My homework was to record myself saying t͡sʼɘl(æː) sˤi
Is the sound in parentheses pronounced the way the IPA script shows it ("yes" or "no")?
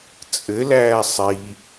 yes